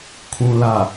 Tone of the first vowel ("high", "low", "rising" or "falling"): low